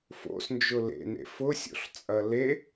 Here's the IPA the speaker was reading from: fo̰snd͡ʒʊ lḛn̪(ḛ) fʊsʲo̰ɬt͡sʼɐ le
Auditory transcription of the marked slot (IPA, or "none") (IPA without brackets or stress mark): ḛ